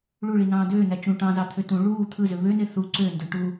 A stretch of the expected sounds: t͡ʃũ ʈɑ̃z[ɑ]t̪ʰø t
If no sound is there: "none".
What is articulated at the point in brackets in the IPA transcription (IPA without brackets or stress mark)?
ɑ